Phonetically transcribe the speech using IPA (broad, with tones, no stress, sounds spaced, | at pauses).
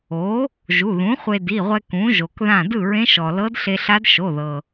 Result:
o˩˥ | ʒ u˩˧˩ ð ũ˩˥ χʷ e˧ d i˩˧˩ ʁʷ ɛ˧ k ũ˩˥ ʒ o˩ k ð ã˥˩ d ɯ˥˩ ɹ ẽ˧˥ ʃ ɔ˩ l ɤ˧˥ d ɬ e˧ ɬ a˧˥ d ʃ o˩˧˩ ð ɤ˩